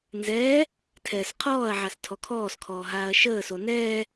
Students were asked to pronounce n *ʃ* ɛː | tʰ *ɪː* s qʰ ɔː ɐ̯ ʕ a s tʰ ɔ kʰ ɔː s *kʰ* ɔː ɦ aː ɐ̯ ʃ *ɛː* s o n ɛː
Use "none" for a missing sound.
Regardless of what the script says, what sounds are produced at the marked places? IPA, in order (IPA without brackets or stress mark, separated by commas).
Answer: z, ɛː, kʰ, əː